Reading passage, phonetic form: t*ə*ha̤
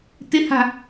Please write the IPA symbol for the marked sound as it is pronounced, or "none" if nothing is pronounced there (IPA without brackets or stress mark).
ɪ